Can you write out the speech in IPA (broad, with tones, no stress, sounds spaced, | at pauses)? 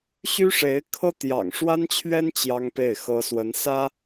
ɕ y˥ ʂ e˧˥ ɪ̯ kʰ ɤ˥ t̪ j ɑ̰˨˩ ŋ ʂ w a˥ n t͡ɕʰ ɥ ɛ˥ n t͡ɕ j ɑ˥ ŋ p e˥˩ ɪ̯ x ɤ˥ s w ə˧˥ n s ä˥